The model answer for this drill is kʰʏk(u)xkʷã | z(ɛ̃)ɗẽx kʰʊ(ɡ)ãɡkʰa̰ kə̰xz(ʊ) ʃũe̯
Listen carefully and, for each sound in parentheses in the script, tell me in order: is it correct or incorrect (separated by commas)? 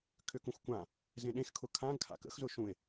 incorrect, incorrect, incorrect, correct